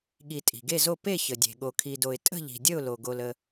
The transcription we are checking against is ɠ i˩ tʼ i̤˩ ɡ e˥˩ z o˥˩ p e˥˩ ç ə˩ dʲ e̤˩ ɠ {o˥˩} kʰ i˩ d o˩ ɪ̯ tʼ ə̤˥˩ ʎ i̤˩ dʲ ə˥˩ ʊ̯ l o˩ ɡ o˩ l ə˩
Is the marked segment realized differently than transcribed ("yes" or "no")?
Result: yes